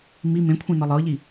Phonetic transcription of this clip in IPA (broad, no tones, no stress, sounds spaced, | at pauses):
m i m ẽ kʷʰ ĩ n ɤ lˠ ɤ ʎ i